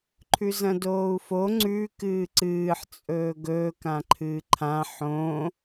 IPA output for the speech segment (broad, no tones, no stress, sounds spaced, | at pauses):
ǃʰ ʉ z ɐ̃ d oː u̯ f o ŋ͡ǀ ʉ k ɨː ǀ ɨː ħ t͡sʼ ɵː ɡ ɵː k ã ǃʰ ɨː ǃʰ ã ħ õ